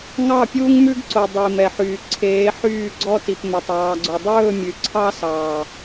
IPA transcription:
ŋ ɑ˦˨ pʲ uː˦ ŋ m ʉ˦ ɡ ǀ o˨ dˤ i˨ m ɛ˨ ħ yː˨ ǀʰ eː˨˦ ħ yː˦˨ ɡ͡ǀ ɔ˦ t i˨ p m ɵ˨ tˤ ɑː˨ ɡ͡ǀ o˨ dˤ ɵː˦˨ mʲ ʉ˨ ǀʰ ɑ˦ s ɑː˨

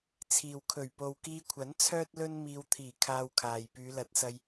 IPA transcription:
t͡sʰ iː˨ w kʰ ɵ˨˩ ɥ p o˨ w k iː˧ kʷʰ ɐ˨˥ n t͡sʰ œː˥ t̚ l ɵ˥ n m iː˧ w t̪ʰ iː˨˩ kʰ aː˧ w kʰ aː˨ j p yː˨˧ l ɐ˨˥ t̚ s ɐ˧ j

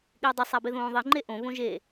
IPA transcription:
ɠ ɪː dˤ ʊ sˤ a b e ð õː ðˤ i ŋ͡ǃ e ʔ õ β õ ʒ e

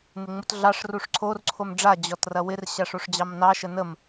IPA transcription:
n ɪ ŋ͡m u t ɮ ɑ ʂ r u ʂ ǀʰ o r ǀʰ o m ɖ͡ʐ a d͡ʑ ɔ t r ɐ w ɪ r ɕ a ʂ o ʂ d͡ʑ ɑ m n ɑ ʃ ə n ə m

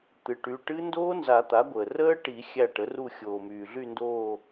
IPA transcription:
t̪ ɨ˩˥ ʈ y˩˧˩ ʈ ɨ˦˥ n d oː˦˥ n z a˨˩˦ t̪ a˩˥ ɡʷ əː˩ r əː˦˥ ʈ i˨˩˦ xʲ æ˦˨ ʈ ə˩˥ r u˦˨ xʲ oː˩ m yː˩ ɮ y˦˨ n d oː˦˨

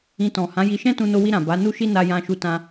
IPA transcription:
ĩ˧ t ɔ̃˨ h ã˨˦ j i˧ ʃ ɛ̃˦ t ũ˧ n o˧ w i˧ ɾ ã˨ b a˨˦ n u˦ ʃ i˦ n a˧ j ã˧ ʃ u˧ t ã˧

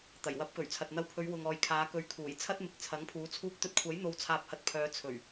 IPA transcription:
t̪ ɐ˨˩ j w ɐ˨˥ p̚ k ɵ˨˩ ɥ t͡sʰ ɐ˨ t̚ n̪ ɐ˧ w pʰ ɵ˨˧ ɥ w ʊ˨ ŋ ɔː˨ j kʰ aː˨˧ k ɵ˨˥ ɥ kʰ uː˨˩ j t͡sʰ ɐ˥ t̚ m ɪ˨˥ k̚ t͡sʰ ɐ˨˥ ŋ pʰ uː˨˥ t͡sʰ uː˧ k̚ t̪ ɵ˧ t̚ kʷʰ ɐ˨˥ j n̪ o˧ w t͡sʰ aː˧ p̚ h ɐ˧ t̚ pʰ œː˨˧ t͡sʰ ɵ˨˩ ɥ

